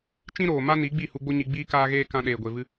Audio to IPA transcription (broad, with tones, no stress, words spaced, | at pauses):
t͡ʃĩ˦ɾoː˨ma˦ ni˨˦ɡ͡bi˦˨ hu˧ɡ͡bo˦ɲi˧ ɡ͡biː˦kaː˦ɣeː˦ kã˧ɗeː˨ɡʷe˨vɨ˧